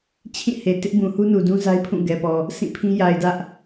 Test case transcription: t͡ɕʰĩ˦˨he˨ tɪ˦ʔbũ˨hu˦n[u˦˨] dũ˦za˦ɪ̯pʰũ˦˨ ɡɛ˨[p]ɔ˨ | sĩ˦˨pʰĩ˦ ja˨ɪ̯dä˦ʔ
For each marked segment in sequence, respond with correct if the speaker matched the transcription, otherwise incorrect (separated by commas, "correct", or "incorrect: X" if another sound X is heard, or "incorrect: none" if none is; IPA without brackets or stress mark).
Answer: incorrect: u˨, correct